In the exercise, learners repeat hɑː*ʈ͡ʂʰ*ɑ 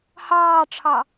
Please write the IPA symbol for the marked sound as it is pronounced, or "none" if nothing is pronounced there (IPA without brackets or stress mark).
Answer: ʈ͡ʂʰ